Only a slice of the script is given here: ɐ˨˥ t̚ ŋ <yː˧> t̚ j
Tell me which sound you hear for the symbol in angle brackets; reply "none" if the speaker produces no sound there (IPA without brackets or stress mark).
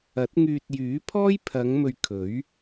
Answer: yː˧